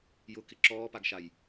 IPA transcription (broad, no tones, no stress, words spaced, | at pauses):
jʊkɪ ǁɔːpaɡʃaj